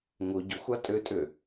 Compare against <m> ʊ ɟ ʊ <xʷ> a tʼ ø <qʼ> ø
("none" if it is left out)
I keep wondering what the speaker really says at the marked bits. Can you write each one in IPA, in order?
ŋ, xʷ, tʼ

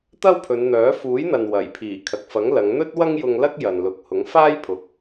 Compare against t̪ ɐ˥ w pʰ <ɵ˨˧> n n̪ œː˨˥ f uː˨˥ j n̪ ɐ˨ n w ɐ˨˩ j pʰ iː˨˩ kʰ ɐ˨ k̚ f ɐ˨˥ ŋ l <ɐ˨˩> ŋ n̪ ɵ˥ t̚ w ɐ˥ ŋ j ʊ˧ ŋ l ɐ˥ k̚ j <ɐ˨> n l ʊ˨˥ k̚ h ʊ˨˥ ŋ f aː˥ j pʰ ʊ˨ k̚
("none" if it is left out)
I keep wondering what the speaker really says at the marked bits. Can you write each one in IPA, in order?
ɵ˨˧, ɐ˨˧, ɐ˨

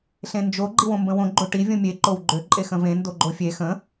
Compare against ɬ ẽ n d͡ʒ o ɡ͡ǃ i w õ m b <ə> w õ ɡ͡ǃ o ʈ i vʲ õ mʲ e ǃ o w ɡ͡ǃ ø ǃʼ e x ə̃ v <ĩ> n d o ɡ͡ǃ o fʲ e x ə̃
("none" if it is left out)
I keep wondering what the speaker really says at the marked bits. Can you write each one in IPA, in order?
ə̃, ẽ

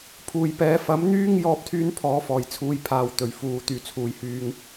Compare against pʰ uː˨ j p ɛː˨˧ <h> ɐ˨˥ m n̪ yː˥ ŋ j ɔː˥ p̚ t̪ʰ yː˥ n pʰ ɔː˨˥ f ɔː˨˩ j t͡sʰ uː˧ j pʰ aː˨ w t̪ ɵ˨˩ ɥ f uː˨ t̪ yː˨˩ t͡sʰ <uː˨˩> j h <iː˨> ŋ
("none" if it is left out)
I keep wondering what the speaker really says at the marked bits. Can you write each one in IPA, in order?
f, uː˨˩, yː˨

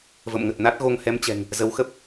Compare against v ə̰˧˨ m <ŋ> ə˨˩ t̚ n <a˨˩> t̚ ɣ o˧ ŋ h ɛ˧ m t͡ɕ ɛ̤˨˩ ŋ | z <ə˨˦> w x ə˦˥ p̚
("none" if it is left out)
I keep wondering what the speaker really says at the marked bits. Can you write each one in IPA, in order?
ŋ, a˦˥, ə˨˦

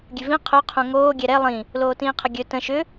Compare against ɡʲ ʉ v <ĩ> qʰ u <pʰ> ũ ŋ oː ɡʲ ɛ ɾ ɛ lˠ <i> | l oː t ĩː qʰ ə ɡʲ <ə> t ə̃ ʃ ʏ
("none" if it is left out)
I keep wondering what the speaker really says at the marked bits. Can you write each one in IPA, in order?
ĩ, qʰ, ĩ, ɵ

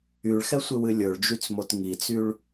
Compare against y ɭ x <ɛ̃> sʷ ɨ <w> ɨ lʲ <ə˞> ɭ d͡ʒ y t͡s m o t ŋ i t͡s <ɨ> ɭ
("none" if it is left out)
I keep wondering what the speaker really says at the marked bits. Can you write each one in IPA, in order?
ɛ, w, ə˞, y

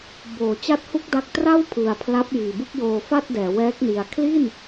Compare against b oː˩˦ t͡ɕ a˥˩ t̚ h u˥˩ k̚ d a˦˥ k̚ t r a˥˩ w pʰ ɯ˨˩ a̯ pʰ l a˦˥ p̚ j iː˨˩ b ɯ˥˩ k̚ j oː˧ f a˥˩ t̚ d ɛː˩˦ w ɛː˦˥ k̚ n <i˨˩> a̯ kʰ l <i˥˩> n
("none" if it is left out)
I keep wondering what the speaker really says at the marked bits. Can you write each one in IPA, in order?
i˨˩, i˥˩

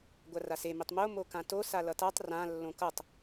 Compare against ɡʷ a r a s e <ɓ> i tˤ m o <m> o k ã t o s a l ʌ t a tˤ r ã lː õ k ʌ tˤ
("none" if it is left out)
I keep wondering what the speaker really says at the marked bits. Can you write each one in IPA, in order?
m, m

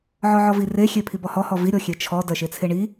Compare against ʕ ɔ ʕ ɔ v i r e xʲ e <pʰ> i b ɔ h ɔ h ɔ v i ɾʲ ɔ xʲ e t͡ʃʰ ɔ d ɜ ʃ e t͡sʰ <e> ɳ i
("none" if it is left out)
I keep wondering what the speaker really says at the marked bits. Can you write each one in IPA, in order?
pʰ, e

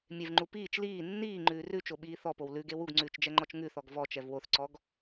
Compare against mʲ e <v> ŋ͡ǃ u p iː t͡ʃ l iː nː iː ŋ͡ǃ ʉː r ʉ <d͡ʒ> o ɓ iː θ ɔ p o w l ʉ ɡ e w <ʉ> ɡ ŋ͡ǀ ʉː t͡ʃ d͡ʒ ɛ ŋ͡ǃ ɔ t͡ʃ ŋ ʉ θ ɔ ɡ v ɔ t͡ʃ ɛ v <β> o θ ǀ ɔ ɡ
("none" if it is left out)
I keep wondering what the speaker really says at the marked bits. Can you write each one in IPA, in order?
v, t͡ʃ, u, w

